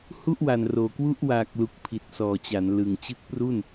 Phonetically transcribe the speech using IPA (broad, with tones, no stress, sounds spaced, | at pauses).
h u˥˩ ʔ w a˨˩ n r oː˨˩ k w u˥˩ ʔ w aː˨˩ k̚ l u˨˩ k̚ pʰ i˨˩ t̚ s ɔː˨˩ t͡ɕ a˩˦ n l ɯ˨˩ ŋ t͡ɕ ɯ˦˥ k̚ p r u˥˩ n